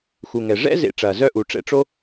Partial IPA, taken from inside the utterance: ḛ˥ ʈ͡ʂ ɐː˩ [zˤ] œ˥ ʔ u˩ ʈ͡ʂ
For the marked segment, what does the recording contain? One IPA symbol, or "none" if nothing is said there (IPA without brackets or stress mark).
z